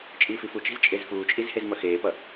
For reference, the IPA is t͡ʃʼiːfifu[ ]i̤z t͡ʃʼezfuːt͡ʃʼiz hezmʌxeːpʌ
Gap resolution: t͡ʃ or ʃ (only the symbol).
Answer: t͡ʃ